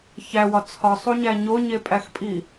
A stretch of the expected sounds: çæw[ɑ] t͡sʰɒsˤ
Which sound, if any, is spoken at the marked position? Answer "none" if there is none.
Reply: ɒ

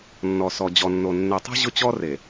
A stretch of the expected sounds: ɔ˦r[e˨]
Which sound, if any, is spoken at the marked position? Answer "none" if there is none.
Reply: e˨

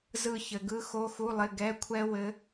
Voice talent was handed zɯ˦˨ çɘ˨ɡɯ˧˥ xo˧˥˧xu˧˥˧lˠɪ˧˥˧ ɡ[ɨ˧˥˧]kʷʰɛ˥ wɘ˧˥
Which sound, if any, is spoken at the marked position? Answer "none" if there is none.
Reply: ɛ˧˥˧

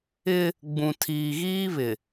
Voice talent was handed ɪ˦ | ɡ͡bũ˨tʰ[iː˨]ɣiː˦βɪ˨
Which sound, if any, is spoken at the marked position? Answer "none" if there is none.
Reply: iː˨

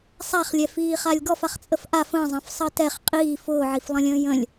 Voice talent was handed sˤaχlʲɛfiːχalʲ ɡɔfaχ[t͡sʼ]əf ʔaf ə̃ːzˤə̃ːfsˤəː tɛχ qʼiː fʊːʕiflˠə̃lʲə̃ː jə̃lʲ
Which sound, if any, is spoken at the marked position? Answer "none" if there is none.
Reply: t͡sʼ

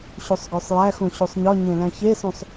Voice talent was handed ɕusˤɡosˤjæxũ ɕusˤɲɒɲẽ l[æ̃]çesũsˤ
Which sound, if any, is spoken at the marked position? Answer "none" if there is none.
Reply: æ̃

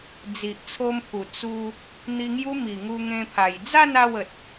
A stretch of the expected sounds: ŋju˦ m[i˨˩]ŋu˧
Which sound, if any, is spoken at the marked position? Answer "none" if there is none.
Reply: i˨˩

